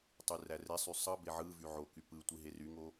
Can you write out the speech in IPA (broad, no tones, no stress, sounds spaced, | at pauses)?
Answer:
tˤ y r æ r e sˤ y sˤ ɯ b e ʕ ɯ v y ʕ o k y p ɯ tʷ i ɦ e r y ŋ o